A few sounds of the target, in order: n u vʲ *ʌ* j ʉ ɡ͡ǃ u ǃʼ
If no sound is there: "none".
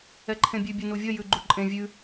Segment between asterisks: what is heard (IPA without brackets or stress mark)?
ʌ